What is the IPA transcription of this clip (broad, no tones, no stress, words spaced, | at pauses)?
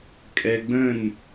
kʼɛɡ͡bə̃n